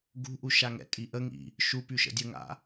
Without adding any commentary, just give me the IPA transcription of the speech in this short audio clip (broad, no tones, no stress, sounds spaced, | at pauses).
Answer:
ɡ ṳ ʔ u ʃ a ŋ ɛ̰ tʼ i ʔ ə ŋ ḭ | ʃ u p y ʃ ə̰ dʲ ə ŋ a̰